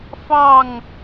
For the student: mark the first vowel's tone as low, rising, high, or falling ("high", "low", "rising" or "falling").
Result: falling